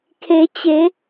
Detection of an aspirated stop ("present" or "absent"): present